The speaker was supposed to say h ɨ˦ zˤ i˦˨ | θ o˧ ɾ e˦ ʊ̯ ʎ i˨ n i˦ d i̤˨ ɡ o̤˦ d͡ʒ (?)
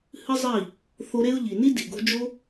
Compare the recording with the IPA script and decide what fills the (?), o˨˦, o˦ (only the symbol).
o˦